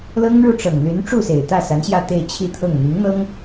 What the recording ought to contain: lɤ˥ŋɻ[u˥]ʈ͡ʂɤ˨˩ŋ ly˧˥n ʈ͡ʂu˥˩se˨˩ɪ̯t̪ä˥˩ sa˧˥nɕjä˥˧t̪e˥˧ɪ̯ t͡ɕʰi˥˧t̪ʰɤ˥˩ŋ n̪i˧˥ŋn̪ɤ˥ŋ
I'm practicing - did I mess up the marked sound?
yes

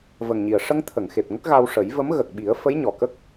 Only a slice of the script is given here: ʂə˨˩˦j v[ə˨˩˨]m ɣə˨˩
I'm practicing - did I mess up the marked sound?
yes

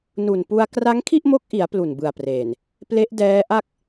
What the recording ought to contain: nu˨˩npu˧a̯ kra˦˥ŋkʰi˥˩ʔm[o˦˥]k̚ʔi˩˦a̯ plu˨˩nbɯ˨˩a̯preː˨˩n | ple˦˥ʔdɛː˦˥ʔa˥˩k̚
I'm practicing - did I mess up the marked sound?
no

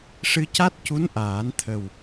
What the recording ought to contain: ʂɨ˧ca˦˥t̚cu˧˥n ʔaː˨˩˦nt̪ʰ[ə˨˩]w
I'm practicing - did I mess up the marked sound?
no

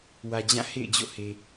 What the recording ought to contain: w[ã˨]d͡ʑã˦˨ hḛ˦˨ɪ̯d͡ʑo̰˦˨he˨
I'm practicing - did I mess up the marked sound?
yes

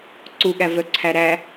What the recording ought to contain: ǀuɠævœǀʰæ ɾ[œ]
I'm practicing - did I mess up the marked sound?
yes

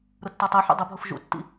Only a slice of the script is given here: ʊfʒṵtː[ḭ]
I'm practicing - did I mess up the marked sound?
no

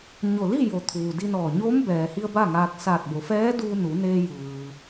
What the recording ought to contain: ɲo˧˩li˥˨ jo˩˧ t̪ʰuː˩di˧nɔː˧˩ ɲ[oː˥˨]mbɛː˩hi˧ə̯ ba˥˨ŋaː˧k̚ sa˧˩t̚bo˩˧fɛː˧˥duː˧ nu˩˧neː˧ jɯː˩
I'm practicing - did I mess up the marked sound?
yes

